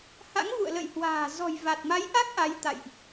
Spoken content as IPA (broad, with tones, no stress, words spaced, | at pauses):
ha̰˧˥ŋvṵ˧˨ə̯lə̰˧˨jhwa̤ː˨˩ zɔ̤˨˩jva˨˩t̚ma˨˦jʔa˦˥k̚ ʔa˨˦jt̪a̰˧˨jʔ